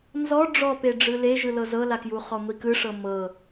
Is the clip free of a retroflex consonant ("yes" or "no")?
no